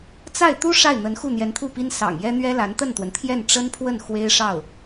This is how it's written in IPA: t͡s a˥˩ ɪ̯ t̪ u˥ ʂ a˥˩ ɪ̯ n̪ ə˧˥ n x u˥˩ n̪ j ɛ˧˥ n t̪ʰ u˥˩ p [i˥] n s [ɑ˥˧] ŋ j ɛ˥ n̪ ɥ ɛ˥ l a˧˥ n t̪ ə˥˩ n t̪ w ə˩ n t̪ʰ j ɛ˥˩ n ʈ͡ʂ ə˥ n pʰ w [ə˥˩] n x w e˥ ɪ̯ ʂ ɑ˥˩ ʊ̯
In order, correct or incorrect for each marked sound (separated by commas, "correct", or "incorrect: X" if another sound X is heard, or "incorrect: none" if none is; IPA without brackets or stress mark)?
correct, incorrect: ɑ̰˨˩, correct